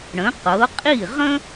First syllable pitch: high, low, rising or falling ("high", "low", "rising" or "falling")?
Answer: rising